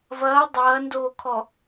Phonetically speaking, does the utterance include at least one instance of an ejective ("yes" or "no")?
no